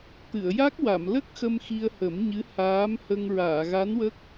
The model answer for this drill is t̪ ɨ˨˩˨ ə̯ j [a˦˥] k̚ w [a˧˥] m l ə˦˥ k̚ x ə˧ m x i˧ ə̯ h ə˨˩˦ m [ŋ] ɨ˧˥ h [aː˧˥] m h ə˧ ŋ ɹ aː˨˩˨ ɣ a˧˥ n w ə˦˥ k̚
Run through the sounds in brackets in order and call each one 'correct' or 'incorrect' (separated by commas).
correct, incorrect, incorrect, correct